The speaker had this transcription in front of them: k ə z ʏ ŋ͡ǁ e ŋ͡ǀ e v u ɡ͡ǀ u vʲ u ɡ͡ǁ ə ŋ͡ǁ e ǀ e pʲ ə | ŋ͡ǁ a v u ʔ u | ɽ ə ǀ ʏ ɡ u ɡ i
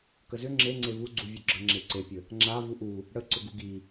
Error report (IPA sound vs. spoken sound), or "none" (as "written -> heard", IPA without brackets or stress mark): none